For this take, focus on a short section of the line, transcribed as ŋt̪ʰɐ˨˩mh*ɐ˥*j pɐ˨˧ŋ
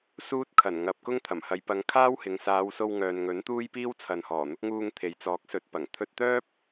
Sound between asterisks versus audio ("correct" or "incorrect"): incorrect